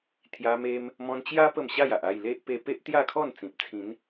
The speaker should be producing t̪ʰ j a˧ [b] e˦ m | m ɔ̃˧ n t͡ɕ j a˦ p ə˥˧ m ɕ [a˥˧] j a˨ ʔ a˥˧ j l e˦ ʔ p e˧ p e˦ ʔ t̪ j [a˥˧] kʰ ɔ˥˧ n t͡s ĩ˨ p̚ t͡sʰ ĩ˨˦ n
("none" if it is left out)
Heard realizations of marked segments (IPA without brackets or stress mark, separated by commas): m, a˥˧, a˥˧